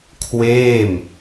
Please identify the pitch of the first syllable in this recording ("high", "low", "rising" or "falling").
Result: falling